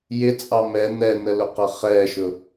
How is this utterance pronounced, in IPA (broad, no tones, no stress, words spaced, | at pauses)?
jɪt͡sʼɑ mɛ n̪ɛnəlʊqʌ χɛʃʊ